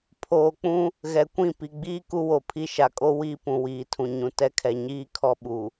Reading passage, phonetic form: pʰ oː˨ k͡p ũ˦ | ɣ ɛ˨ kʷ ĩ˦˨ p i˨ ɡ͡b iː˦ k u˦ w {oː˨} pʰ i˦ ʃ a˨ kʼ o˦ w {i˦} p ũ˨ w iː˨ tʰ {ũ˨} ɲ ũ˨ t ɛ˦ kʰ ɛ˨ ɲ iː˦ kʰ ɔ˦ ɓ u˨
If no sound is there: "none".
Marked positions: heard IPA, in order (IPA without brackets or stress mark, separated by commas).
o˨, i˦, ũ˨